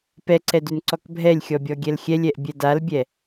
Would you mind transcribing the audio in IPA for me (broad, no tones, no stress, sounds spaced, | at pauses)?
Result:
p ɛ ǀ ɛ d ʉ n ǀ ɔ k bʱ ɛ lʲ xʲ ɔ bʲ ɔ ɡʲ ɛ l xʲ ɛ lʲ ɛ ʔ bʲ ɛ d a l bʲ ɛ